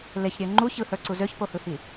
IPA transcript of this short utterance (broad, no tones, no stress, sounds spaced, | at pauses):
l e ç ɾʲ ø ŋ͡ǃ u ç ɯ h ə˞ ǀ u z ø ç p o h ɯ h i